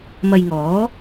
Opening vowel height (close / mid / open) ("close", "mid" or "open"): open